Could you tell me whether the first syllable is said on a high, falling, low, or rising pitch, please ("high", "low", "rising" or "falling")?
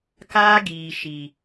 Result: high